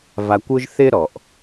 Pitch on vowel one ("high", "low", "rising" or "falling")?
low